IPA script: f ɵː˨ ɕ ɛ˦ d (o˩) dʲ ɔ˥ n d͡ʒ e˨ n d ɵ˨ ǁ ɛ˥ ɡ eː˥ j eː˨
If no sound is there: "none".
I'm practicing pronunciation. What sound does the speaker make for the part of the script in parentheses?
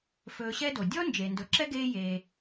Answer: o˩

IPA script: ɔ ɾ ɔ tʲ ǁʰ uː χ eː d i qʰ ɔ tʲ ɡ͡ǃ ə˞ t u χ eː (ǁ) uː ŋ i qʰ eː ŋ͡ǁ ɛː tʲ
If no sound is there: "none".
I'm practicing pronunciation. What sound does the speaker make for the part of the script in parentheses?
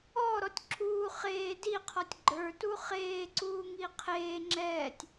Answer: ǀ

